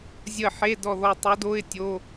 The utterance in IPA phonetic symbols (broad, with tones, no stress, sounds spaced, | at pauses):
zʲ ə˦˨ ħ e˧˥˧ d ɔ˦˨ ð ɔ˦˨ tˤ o˧˥ d o˧˥˧ ɪ̯ tʲ o˧˥˧